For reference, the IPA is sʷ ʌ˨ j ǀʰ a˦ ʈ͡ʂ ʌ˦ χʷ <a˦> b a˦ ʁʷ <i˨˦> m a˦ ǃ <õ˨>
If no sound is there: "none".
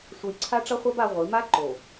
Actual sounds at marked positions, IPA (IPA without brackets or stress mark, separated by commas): a˦, i˨˦, o˨